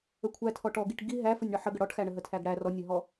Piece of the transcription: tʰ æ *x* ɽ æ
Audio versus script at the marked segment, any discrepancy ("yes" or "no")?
yes